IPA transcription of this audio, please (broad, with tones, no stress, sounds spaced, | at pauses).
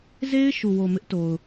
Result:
z e˦ ɪ̯ ʃ u˨ w o˨ m ɪ˦ ʔ t o˨ ʊ̯